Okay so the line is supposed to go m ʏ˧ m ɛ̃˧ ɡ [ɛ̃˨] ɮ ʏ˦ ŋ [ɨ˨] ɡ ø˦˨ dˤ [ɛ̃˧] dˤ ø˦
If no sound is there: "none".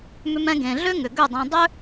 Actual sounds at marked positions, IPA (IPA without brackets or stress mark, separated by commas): ẽ˨, ʏ˨, ɛ̃˧